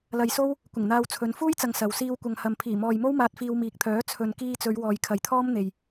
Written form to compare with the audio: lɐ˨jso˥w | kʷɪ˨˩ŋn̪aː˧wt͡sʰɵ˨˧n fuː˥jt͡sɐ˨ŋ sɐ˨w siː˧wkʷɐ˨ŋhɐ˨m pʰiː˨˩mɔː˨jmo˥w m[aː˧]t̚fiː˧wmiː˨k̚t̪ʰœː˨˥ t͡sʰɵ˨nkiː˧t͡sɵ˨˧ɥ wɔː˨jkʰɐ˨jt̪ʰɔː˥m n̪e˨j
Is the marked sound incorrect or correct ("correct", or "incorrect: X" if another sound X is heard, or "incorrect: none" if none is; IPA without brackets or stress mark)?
correct